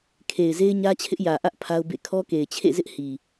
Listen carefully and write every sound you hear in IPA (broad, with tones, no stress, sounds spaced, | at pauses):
kʰ e˨ ɪ̯ z e˦ ɪ̯ ɲ ä˦ t͡ɕʰ ɪ˦ ʔ j ä˨ ʔ ä˦ ʔ pʰ a˦ ʊ̯ b ḛ˦˨ kʰ ɔ˦ k e˨ ɪ̯ t͡ɕʰ ḛ˦˨ z ɪ˦ ʔ h i˨